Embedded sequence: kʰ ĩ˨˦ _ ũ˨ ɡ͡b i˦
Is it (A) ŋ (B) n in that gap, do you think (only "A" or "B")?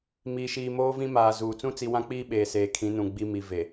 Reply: B